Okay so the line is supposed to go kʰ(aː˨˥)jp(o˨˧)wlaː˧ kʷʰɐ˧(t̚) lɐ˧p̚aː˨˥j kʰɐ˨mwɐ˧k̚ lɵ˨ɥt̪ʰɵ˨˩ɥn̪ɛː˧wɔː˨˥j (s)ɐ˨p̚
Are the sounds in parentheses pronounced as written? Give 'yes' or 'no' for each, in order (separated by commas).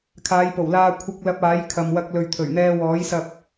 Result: no, no, no, yes